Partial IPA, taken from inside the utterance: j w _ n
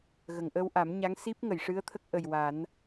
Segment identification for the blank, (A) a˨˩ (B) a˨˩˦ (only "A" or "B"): B